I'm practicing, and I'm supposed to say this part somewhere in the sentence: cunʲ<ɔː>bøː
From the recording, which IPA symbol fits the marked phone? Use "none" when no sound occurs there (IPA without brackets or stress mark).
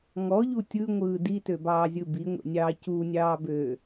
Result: ɑː